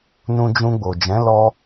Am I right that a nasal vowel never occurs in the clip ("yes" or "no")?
no